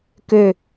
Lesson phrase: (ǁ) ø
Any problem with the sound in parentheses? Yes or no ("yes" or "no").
yes